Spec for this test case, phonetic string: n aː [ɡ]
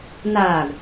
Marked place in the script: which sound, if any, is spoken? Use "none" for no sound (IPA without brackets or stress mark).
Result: ɡ